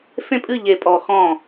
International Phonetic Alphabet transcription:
fẽ˦pʼɨ˦˨ʎe˨pʼɔ˨ xɔ̃˦˨

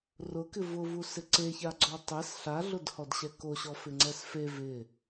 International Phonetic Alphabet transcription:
rʊkɪ vʊvusɪ ǀeçaɡ͡ǀɔ tˤɛs ɬaɮʊdhɔdɕɛ koɕɔfɪŋ͡ǀɛs fe vɪ

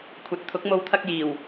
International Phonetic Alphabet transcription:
kʷʰɐ˨˥t̚t̪ʰʊ˨˥k̚mo˧w t̪ʰɐ˧k̚jiː˨˩w

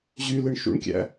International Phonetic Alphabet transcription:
ʑylɯɳ ʃṵɳkʲæ̰

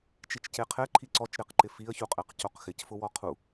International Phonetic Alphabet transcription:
t͡ʃit͡ʃceqʰɛǃʰi ǀɔt͡ʃɾeqǃɪ fiə̯çuqʼɛq coqxɪcfʊ wɔqʰu

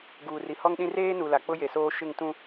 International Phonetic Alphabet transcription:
ɡuː˨ri˨hɔ˦ŋɗĩ˦ reː˦nu˨ la˨k͡pʊ˦je˨soː˦ ʃɪ˦˨ŋtũ˦

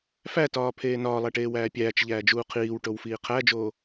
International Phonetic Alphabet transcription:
fætɒːpʰeː nɒːlˠæʈeːwæː pʲæːt͡ʃʎæːd͡ʒuː qʰiːwʈowfiː qʰæd͡ʒoː

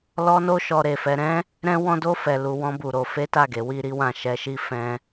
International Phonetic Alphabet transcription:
lɔ˦no˦ ʃɔ˦ɾe˧fɛ˦ ɾɛ̃˦ | ɾɛ̃˦wɔ̃˦do˦ fɛ˧ lu˧ wɔ̃˦bu˧ɾo˧ fe˦ta˦˨ɡe˨˦ wi˦ɾi˦wã˦˨ ʃɛ˧ʃi˦ fɛ̃˦

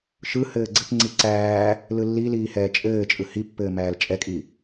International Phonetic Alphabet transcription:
ʃɯ hɘːɡ͡ǀɘpŋ͡ǀi ǀæː | lɯlːiliː hɛːt͡ʃʼɘːt͡ʃʼɯ hipːɘː mæːlt͡ʃʼɛkʼi

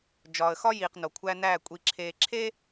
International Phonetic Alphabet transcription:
d͡ʒɒː˨ə̯xɒ˦ jiː˨qno˨kʷʰæ˦næː˦˨ kʷʼi˨ǁʰeː˨ ǁʰe˦

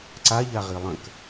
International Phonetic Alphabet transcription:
ǀaʎaʁi lˠə̃k

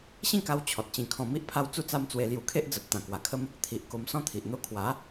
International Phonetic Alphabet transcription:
ɕĩ˥˧ka˧w t͡ɕʰɔ˨t̚t͡ɕĩ˧ kʰɔ̃˧ mi˦ʔpʰa˦w t͡su˥˧t͡sa˦mt͡swe˧ lju˧kʰe˦ʔd͡zə˨p̚ t̪ã˨˩ kwa˨˩kʰə˦m | t̪ʰi˨ʔ ko˧msɔ̃˦t̪ʰi˨ʔ n̪o˧kʰwa˨˦

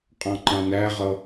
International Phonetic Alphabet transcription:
qʼɑ̃ǃɑ̃næʁʌ

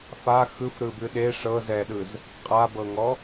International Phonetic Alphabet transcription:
fa xɯfɾɯbɨ ɗe ʂɤ zɛɗɯz | qʼabɤŋɔ

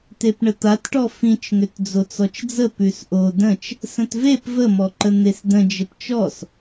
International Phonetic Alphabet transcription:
tepɳət̪atʈɔ fĩt͡ʃŋʏt d͡zot͡sɔt͡ʃd͡zə pʉsʔo də̃t͡ʃ | sə̃tvep vəmɔǃə n̪esdə̃ d͡ʒəpt͡ʃɔs

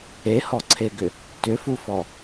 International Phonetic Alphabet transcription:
ehɔǀʰeɡʏ | tʏfufɔ

